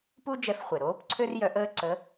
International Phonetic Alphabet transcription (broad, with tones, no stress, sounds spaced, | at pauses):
p u˥ d͡ʒ ɛ˧˥ f χʷ e˩ ɾ oː˧˥ p ǀʰ ø˥ r j œ˧˥ ʔ əː˥ ǀ ə˧˥